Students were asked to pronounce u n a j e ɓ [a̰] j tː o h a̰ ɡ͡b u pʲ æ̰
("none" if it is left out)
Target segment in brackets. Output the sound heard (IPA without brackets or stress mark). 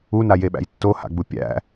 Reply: æ̰